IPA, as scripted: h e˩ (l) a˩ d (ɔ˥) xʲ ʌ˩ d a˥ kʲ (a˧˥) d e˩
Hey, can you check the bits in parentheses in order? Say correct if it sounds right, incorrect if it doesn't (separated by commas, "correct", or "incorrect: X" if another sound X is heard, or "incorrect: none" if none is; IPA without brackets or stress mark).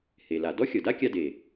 correct, correct, incorrect: a˧